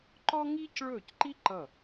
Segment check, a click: present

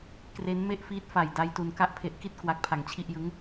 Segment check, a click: absent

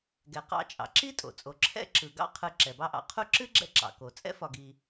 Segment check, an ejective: present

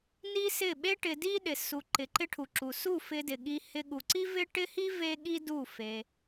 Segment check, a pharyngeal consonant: absent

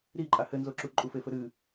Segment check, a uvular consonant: absent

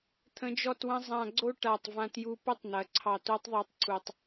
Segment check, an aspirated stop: present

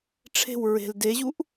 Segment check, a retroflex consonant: present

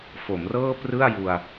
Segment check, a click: absent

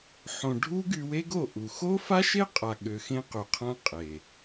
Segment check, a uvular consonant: present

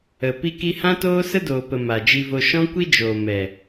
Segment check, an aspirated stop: absent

